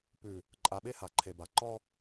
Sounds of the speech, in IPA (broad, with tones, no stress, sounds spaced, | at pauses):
p ʉ˨ | ǃʼ a˨ ɓ e˦ h a˨ ǃʰ e˨ b a˨ ǃ ɔ˦